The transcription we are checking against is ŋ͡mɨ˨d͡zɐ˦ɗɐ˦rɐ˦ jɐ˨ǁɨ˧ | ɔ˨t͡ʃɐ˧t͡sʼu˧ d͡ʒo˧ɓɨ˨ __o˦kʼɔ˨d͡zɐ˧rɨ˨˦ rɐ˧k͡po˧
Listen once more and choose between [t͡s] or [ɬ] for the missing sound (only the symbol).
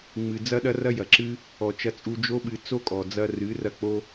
t͡s